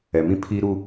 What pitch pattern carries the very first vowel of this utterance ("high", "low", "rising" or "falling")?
low